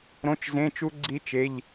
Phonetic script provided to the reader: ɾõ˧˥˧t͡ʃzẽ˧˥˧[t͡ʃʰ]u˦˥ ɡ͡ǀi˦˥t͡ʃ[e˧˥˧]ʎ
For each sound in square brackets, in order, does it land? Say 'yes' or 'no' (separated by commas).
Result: no, yes